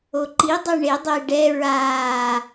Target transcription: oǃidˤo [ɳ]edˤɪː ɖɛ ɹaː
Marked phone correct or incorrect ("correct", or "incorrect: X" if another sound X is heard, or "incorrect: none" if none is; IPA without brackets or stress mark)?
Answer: correct